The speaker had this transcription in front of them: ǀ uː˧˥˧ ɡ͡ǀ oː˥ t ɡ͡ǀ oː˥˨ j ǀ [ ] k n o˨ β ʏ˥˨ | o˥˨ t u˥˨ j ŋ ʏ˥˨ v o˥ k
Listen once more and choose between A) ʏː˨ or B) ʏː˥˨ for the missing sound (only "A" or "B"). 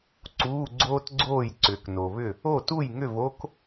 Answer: A